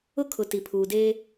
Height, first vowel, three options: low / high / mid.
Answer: high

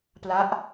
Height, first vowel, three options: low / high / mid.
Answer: low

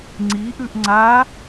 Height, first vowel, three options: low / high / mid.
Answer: high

